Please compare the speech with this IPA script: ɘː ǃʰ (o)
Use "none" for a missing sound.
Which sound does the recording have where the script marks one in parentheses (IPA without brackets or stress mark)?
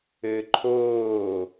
oː